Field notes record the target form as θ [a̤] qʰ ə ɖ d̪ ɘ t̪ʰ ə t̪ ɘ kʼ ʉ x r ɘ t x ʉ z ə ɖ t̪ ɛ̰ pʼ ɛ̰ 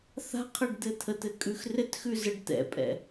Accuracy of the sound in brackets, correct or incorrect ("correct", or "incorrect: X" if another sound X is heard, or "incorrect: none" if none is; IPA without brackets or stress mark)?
correct